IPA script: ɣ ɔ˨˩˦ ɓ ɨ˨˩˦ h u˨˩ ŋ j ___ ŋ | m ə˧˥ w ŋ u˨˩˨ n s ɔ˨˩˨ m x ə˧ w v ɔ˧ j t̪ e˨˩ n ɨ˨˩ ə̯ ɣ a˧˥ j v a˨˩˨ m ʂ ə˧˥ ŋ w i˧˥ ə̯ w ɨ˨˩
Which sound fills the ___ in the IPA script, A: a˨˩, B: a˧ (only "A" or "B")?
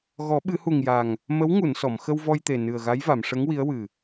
A